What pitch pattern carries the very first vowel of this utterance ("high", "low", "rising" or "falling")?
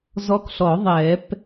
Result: rising